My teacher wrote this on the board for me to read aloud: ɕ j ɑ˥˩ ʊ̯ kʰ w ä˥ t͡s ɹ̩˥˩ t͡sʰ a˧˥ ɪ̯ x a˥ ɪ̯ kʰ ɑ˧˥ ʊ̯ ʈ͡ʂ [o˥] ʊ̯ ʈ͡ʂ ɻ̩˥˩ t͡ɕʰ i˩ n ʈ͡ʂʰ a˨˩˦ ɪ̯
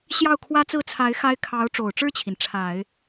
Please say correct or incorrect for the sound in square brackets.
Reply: incorrect